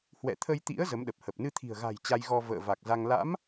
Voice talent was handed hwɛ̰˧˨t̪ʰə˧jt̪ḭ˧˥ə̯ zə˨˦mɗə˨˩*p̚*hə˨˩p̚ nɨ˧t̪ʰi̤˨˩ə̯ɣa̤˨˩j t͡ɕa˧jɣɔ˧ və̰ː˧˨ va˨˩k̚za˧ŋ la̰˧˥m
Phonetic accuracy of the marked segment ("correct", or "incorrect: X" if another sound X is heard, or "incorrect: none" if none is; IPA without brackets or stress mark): correct